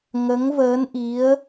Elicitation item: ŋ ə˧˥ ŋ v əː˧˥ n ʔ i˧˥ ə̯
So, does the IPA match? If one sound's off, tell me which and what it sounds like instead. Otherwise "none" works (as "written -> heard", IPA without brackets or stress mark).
none